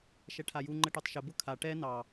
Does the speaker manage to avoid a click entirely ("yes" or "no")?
no